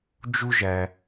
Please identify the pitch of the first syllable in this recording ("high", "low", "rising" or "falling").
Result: high